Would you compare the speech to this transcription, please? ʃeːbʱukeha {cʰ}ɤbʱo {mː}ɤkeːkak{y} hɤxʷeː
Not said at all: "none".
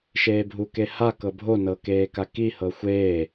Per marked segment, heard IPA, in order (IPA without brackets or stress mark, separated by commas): k, n, i